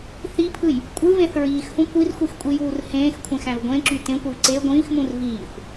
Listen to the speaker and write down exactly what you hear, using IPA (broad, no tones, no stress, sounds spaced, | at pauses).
θ i pʰ ɯ j | kʷʼ ɯ v ẽ θ ɹ iː x h ũ kʷ i r xʷ i x kʷʼ i j uː r h ẽː x kʷʰ ẽ x æ̃ v ɡʷ ẽ ǁ y t ẽ kʷ i v ǀ e ɡʷ ĩː x m ũ r v iː xʷ